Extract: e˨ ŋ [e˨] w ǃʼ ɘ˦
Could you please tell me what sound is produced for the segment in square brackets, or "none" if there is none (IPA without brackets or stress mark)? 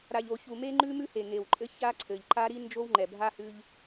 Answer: e˨